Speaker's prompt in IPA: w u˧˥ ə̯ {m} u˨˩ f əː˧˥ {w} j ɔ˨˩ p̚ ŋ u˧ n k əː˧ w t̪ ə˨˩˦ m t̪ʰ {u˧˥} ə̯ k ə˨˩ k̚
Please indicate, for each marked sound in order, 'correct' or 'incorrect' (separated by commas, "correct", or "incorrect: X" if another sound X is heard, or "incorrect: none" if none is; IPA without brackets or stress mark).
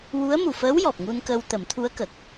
correct, correct, correct